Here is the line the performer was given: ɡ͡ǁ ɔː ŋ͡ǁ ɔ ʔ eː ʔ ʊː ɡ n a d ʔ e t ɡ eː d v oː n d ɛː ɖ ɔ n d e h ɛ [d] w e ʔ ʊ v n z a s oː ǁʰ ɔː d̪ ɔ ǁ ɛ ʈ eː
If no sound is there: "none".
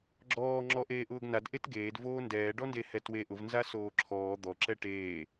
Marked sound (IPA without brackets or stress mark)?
t